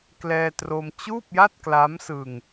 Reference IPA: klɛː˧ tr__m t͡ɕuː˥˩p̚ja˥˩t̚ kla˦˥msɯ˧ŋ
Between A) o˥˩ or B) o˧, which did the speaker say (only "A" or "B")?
B